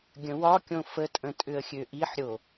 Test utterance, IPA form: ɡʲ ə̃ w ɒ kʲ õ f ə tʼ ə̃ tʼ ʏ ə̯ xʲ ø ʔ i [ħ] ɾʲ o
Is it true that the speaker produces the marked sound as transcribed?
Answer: yes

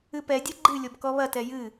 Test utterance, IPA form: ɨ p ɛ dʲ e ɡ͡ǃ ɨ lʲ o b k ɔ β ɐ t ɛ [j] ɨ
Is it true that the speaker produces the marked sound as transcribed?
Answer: yes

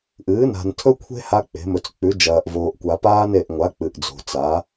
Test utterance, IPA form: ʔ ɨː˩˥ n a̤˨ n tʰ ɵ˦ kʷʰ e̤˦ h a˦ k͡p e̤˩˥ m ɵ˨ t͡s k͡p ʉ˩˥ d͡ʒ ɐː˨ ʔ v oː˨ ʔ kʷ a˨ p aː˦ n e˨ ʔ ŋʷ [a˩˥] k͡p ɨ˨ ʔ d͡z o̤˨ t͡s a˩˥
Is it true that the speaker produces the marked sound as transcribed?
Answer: yes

